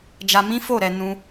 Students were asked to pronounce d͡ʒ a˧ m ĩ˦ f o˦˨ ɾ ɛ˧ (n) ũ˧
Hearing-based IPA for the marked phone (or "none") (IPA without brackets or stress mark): n